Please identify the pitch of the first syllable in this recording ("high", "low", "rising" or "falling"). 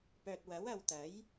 low